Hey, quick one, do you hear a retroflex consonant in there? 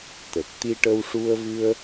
yes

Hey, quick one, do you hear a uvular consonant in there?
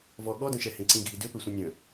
no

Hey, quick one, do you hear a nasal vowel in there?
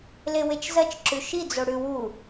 no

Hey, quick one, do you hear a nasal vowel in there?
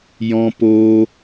yes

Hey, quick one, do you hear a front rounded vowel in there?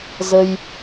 no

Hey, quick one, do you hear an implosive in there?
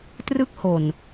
no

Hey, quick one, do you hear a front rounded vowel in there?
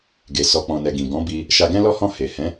no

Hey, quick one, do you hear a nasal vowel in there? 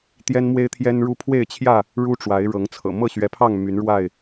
no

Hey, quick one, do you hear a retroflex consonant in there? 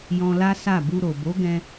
no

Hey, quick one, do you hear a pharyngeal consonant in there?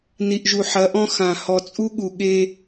yes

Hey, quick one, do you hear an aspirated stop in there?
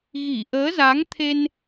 yes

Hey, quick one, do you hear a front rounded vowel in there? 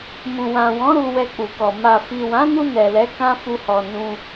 no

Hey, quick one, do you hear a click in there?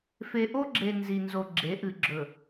yes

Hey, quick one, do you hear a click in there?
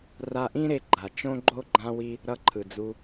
yes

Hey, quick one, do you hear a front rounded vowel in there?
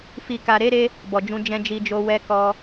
no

